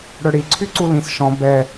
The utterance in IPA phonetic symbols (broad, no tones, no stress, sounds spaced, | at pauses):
ɽ œ ɽ i ǀʰ y ǀ u l ĩ s ʃ ɔ̃ b ɛ